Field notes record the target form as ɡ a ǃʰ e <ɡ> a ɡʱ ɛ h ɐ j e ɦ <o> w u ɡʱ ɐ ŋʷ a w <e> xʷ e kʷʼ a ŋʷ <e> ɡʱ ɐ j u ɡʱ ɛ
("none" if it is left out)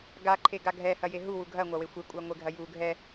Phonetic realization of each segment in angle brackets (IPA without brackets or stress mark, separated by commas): ɡ, u, e, e